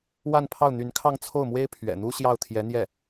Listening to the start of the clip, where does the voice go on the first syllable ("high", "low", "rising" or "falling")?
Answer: falling